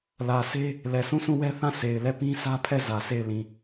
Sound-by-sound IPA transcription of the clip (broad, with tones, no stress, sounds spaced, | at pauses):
l ä˨ s e˦ | l ɛ˨ s ũ˦˨ s ũ˦˨ w ɛ˦ θ ã˦˨ s e˨ ɪ̯ l ɛ˦˨ p ĩ˦ sʰ ä˦ pʰ ɛ˦˨ z ä˨ sʰ e˦˨ ɪ̯ l ĩ˦˨